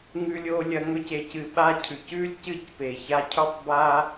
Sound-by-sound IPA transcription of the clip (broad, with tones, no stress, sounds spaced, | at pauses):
ŋ ʉ˦ lʲ o˦ lʲ ɐ˧ ŋ ɵ˦ c e˧ c ɨ˧ ɓ a˦ cʰ ʉ˨ c ʉ˦ lʲ c ɨ˦˨ c p e˨ ç a˧ cʰ u˦ tˤ b a˦